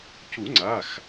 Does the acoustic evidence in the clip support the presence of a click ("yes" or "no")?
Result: yes